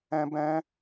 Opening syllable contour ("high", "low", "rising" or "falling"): high